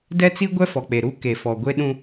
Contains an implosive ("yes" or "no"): yes